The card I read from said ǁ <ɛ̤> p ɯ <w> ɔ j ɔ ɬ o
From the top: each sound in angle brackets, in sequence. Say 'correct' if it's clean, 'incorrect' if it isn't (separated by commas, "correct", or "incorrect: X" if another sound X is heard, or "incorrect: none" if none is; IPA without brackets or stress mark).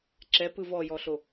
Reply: incorrect: ɛ, incorrect: v